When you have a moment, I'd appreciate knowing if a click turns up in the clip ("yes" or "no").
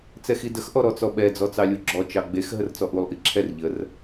yes